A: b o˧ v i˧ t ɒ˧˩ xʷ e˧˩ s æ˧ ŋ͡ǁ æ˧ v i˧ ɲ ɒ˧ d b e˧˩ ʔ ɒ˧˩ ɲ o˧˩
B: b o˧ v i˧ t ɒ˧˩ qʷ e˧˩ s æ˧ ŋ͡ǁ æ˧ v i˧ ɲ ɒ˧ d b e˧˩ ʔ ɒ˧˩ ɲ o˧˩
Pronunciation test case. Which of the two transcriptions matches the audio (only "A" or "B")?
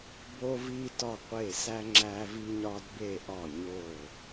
B